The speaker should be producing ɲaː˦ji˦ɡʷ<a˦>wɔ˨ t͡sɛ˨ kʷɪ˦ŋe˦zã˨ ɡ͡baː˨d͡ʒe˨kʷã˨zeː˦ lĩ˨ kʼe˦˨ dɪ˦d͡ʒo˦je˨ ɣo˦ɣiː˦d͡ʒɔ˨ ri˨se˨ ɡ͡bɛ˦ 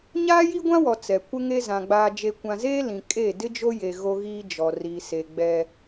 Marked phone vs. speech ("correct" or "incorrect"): incorrect